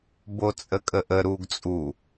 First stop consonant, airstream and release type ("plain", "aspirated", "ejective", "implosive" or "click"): plain